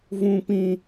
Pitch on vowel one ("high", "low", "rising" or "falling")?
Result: high